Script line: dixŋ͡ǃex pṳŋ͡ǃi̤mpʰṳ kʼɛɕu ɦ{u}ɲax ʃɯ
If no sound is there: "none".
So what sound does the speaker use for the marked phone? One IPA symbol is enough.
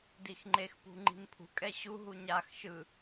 u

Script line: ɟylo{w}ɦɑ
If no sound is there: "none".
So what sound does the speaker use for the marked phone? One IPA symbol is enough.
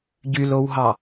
w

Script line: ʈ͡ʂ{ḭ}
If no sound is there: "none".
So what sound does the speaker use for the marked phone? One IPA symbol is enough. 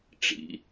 ḭ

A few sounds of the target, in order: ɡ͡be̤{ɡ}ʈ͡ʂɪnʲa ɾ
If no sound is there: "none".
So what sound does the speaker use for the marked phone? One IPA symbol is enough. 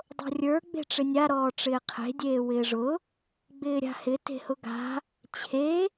none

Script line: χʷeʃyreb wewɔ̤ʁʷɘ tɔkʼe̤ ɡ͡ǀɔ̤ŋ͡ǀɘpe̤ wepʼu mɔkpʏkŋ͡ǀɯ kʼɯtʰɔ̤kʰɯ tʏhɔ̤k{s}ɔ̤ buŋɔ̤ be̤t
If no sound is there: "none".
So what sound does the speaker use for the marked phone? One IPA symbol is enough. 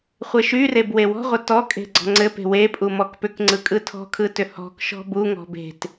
ʃ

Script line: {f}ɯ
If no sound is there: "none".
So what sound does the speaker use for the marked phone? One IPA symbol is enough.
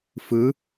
f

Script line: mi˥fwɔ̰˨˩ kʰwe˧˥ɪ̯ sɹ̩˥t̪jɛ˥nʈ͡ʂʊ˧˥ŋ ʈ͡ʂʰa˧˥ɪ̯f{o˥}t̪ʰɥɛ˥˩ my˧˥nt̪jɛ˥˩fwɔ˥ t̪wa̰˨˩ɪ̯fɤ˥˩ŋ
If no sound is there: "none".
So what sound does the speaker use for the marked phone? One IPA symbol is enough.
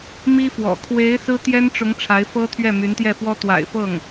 ɤ˥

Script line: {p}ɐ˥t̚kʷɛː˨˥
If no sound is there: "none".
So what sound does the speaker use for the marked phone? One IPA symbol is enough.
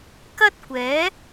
k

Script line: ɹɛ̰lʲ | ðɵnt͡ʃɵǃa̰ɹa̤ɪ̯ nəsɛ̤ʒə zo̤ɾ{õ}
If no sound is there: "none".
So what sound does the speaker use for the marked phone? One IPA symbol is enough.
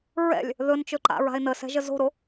o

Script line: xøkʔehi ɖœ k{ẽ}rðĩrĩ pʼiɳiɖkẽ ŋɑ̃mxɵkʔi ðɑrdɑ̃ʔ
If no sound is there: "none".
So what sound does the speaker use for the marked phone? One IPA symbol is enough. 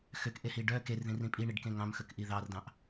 e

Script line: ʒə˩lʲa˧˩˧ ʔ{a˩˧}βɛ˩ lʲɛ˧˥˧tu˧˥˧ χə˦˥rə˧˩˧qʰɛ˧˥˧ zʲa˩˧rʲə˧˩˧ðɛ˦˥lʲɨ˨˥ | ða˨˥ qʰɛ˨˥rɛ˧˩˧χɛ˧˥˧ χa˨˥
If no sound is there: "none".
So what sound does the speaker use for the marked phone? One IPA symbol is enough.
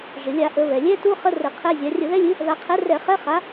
ə˩˧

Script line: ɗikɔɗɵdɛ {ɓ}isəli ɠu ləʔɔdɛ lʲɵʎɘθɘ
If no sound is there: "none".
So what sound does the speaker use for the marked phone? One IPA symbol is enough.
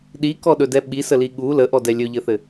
ɓ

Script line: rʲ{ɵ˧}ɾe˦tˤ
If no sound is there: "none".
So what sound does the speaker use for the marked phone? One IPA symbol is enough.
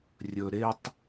ɵ˧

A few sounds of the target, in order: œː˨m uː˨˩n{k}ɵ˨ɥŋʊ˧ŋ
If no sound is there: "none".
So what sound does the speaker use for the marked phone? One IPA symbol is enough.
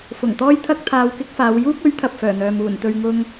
t̪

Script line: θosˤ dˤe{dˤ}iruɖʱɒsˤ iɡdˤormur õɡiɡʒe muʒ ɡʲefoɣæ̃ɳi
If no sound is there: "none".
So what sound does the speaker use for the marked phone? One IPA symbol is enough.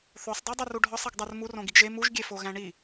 dˤ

